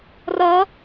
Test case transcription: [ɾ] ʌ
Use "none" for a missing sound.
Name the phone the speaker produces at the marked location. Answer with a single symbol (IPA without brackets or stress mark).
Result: r